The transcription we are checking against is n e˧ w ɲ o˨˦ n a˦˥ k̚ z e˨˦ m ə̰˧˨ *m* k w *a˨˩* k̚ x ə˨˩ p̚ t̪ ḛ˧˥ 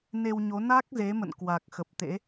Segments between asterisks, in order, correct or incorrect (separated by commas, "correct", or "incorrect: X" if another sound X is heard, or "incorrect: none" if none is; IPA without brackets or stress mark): incorrect: n, correct